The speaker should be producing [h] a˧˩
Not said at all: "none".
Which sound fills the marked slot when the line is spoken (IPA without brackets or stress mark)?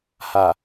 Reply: h